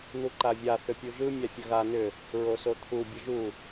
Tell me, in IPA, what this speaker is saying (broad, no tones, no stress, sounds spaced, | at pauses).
n̪ u ǃ a vʲ a θ ʏ pʲ u ʒ ɯ mʲ a fʲ ə ɣ a n ʏ | ɹ o s o t̪ʰ u bʲ ə ʒ u